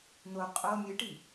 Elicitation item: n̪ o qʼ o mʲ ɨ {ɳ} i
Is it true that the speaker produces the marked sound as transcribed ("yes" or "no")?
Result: no